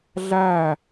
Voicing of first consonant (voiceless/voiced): voiced